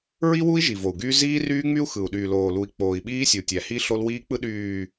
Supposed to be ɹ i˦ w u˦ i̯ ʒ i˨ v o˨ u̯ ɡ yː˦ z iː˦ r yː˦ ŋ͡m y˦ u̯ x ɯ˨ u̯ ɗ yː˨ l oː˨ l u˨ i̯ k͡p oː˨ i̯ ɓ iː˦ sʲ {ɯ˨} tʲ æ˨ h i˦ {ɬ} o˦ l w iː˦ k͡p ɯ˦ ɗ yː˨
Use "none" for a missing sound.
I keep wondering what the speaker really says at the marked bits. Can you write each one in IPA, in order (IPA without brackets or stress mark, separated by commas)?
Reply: u˨, ɬ